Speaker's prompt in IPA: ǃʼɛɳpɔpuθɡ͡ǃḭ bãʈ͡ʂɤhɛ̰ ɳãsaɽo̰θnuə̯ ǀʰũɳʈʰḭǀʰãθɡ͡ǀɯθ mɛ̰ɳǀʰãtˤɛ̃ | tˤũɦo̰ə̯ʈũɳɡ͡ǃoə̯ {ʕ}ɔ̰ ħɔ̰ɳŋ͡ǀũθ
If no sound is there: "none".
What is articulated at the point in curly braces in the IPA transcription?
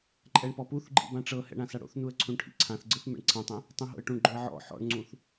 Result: ʕ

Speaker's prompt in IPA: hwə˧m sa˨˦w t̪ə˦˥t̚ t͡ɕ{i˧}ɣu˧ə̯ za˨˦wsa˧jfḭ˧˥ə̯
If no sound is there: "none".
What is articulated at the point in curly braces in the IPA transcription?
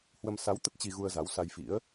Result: i˧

